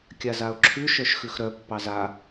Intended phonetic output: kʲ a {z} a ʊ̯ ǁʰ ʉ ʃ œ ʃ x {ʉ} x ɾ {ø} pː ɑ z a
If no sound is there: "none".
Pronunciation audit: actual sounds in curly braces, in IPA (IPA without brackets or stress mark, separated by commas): z, ʉ, œ